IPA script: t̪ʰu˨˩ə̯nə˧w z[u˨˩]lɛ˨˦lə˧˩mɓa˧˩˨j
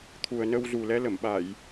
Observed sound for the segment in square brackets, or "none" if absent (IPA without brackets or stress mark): u˨˩